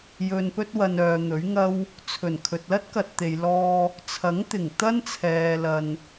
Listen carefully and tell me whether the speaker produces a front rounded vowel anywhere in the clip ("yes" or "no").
yes